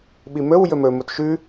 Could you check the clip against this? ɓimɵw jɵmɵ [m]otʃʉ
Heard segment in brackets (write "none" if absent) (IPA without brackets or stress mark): m